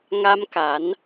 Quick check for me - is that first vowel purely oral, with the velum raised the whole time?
yes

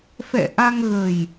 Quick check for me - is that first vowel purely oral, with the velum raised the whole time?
yes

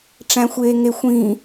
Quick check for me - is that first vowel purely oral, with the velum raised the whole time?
no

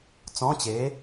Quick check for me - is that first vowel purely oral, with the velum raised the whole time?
no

